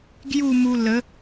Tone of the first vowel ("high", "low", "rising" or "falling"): falling